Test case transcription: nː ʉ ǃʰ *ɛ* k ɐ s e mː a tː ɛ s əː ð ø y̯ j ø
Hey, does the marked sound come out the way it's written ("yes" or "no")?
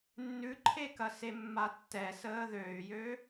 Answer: no